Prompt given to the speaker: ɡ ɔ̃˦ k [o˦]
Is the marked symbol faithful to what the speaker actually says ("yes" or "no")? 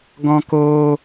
no